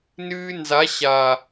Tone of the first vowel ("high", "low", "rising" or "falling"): high